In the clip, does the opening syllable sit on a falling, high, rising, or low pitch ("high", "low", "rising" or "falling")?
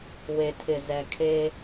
low